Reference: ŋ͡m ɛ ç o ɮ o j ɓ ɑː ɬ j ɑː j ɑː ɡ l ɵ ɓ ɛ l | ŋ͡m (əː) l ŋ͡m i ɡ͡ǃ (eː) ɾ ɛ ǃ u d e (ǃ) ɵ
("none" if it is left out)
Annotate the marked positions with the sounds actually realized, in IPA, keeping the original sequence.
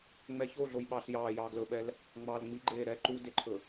ɑː, eː, ǃʰ

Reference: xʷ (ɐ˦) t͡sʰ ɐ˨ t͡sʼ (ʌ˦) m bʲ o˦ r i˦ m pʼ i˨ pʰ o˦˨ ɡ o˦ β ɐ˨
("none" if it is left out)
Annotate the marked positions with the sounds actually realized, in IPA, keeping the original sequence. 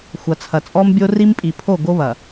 ɐ˨, ɔ˦

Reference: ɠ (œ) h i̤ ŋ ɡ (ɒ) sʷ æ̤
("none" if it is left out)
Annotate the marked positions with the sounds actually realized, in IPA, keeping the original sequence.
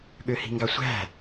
ø, ɑ

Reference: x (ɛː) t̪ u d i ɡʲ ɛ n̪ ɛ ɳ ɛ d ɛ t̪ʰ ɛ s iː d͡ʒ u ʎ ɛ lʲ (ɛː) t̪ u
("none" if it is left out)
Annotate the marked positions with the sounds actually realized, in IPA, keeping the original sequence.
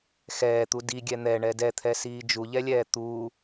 ɛː, ɛː

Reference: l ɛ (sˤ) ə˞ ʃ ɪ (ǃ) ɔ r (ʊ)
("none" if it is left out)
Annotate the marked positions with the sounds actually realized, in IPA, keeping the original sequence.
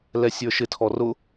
sʲ, tʰ, ʊ

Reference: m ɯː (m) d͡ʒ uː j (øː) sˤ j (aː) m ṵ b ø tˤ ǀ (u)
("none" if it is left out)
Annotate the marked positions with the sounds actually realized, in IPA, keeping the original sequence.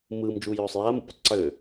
m, øː, aː, ø

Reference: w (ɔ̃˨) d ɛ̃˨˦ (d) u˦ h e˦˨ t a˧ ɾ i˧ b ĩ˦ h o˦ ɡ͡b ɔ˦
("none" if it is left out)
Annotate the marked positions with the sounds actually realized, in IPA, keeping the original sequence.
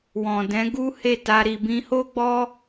ɔ̃˨, ɡ

